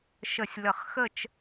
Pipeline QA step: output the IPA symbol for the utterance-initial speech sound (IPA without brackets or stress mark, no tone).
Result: ʃ